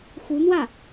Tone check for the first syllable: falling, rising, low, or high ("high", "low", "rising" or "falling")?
rising